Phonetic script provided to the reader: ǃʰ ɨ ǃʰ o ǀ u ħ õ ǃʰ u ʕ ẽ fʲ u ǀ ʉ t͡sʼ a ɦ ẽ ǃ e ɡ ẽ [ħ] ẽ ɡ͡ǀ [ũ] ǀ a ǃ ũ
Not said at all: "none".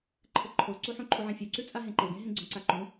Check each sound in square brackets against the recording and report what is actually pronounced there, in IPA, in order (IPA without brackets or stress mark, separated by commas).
ɦ, õ